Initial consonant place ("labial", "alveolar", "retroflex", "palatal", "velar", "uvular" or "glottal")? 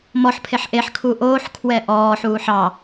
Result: labial